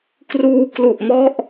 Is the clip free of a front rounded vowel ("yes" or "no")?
yes